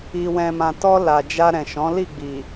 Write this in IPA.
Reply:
i˨ w ɛ̃˨ m ã˨ t ɔ˧ l a˨ d͡ʒ a˧ ɾ ɛ̃˨ ʃ ɔ̃˨˦ l i˦˨ ɡ͡b i˨

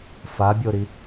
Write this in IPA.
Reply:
f a bʲ o ɾ i

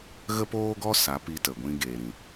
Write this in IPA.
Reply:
ɣ ə˦ p oː˦ ɡ ɔ˦ s a˨˦ p i˧ t ə˨ ɡʷ ĩ˧ ɡ eː˨ ɾ ĩ˨

